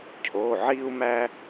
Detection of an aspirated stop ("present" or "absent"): present